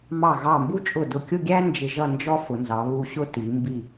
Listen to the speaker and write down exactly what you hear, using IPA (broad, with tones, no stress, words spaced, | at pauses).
mɑ˧˩ɣɑ˧˩mbu˥t͡ʃʼʊ˧˩ dʊ˧˩kʲʊ˥˧ɡʲæ˥ nd͡ʒɪ˧ʒʌ˥˧nd͡ʒɔ˥ fʊ˩˧nzɑ˩˧βu˧ɕʊ˥ ti˩˧mbi˧˩